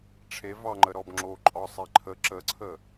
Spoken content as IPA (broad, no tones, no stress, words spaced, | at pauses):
ʈ͡ʂʰe vɑŋ͡ǃə ɾɔbŋ͡ǁo ǃʼɒsˤeǃʰə ǁəǀʰə